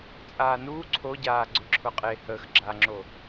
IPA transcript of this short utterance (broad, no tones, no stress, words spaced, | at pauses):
t͡sʼaːnuː ǀʰoɟaː ɡ͡ǀʊǁʰʊqʼe həːx ɡ͡ǁaŋ͡ǁo